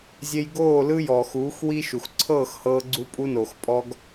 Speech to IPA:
zʲe˧jɡoː˦˨ lɯ˦ jɔ˨xuː˨˦x wi˦ʃu˨x ǀʰɤː˦˨xhɤː˧ɡ͡ǀu˧ pʼu˧noː˨xpʼɔ˧ɡ

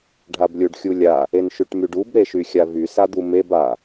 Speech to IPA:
ɖʱablʲuɖxʲulʲa | enʃyʈmyɖub ɾeʃyxʲavy sad̪umeb a

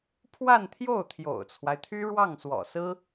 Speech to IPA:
pʰwa˥˧nt̪ʰjo˥˩ʊ̯ t̪ʰjo̰˨˩ʊ̯t͡sʰwa˦ɪ̯t̪ʰy˥ ɻwɑ˥˩ŋswɔ̰˨˩sɹ̩˥

